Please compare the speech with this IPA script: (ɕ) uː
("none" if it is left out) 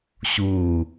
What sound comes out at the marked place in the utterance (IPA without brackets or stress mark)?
ɕ